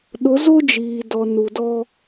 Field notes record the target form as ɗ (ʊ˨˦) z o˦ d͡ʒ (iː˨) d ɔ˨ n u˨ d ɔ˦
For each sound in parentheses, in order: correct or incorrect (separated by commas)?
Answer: correct, correct